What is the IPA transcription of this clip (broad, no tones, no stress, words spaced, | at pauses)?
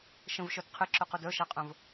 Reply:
ʃə̃vʃœd qʰɪǁœqʏd œʃaqʼə̃v